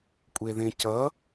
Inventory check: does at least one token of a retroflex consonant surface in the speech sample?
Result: no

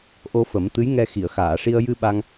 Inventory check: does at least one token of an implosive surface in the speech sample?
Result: yes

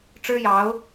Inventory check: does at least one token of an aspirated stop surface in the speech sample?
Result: no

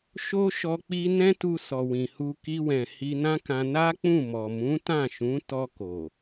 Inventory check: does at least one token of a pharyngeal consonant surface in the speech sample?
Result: no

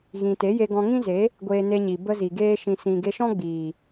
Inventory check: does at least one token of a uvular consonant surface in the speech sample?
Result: no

